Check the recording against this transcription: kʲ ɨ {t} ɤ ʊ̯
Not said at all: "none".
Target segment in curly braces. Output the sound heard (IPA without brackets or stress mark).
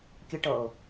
ʈ